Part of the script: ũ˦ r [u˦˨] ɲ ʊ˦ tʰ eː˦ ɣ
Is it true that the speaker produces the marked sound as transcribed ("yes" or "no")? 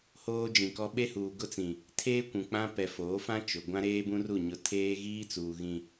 yes